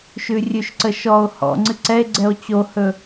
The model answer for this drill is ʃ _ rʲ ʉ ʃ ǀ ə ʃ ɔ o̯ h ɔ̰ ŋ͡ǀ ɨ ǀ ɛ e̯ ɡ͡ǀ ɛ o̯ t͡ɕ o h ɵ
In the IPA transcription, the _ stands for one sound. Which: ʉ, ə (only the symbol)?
ʉ